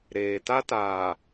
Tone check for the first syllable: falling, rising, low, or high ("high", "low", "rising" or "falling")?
low